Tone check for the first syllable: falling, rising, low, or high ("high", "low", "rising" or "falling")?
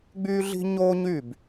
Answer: high